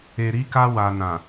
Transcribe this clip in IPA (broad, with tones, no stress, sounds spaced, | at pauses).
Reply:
e˨ ɾ i˧ k a˧ w a˨ n ã˨